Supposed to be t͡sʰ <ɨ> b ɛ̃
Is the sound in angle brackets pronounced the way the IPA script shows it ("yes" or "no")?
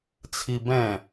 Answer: no